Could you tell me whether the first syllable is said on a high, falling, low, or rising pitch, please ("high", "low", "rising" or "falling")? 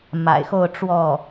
low